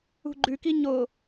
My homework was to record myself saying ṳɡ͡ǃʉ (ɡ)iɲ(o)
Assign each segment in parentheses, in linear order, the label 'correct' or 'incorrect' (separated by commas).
incorrect, correct